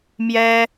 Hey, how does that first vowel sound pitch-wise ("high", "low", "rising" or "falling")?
high